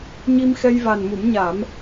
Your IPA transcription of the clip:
ɲ i˧ m x ɛ˧ j v a˨˩ n m u˨˩˦ m ɲ a˨˩˦ m

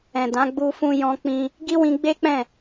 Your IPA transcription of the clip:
ɛ̃˨ d ã˨˦ ɡ͡b u˧ f ũ˧ j ɔ̃˧ k͡p ĩ˧ | ɡ i˦ w ĩ˧ ɡ͡b e˦ k͡p ɛ̃˦˨

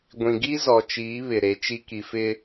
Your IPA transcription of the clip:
ɡʷ ĩ˨ ɡ i˦ z ɔ˨ t͡ʃ iː˨˦ β ɪ˨ ɾ e˨˦ t͡ʃ i˦ k i˨ f ɪ˦

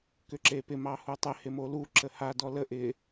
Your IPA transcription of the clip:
k ʏ ǁ e p ɪ m ɑ h u tˤ ɪ h ɪ m o l u ǁ ə h a d ɔ l ə ʔ ɪ

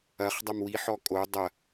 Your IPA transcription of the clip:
ɐ χ dˤ ɐ m w i ħ ɔ kʼ o dˤ ɐ

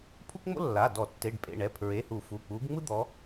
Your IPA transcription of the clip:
pʰ u˥ k ŋ͡m o̰˥ lː a˩˧˩ d ɔ˧˩˧ tː e˩˧˩ ɖ pʼ ḛ˩˧˩ ɳ ɛ˩˧˩ pʰ ɹ e˩˧˩ h u˧˩˧ f u˩˧˩ k͡p u˨˦ ɡ ŋ͡m ɯ˥ d̪ ɔ˨˦

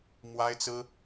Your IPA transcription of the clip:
m w a˥ ɪ̯ t͡s ɹ̩˥

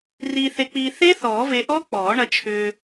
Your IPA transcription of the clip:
r iː˧ θ e˧ k͡p iː˧ θ e˦˥ θ ɔː˨˩˦ v e˧ ʔ ɔ˦˥ k͡p ɔː˨˩˦ ɳ ɐ˧ t͡ʃʰ ʏː˧

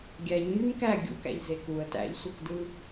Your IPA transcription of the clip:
ɡʲ æ ɲ m y m k æ ɡʲ ṵ k æ̰ ʎ z e k u ə̯ t æ̰ ʎ sʷ i k d ɯ

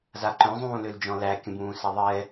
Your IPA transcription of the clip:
z a ǃ œ̃ zˤ ũː l ø l d͡ʒ ɔ̃ l æ kʲ ə̃ b ũː s a ðˤ ɛ

